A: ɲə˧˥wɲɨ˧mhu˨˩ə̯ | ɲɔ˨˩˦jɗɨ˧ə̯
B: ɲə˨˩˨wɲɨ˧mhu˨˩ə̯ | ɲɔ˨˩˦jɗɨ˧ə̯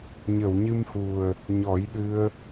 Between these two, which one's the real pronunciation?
B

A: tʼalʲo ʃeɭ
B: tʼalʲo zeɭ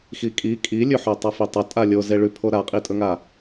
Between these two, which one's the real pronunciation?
B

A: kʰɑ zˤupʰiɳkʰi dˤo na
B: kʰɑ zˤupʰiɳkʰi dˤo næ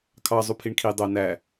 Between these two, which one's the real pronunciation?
B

